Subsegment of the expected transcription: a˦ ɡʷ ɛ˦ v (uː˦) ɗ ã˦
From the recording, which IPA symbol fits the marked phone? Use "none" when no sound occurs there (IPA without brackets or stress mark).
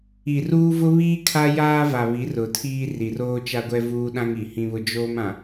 uː˦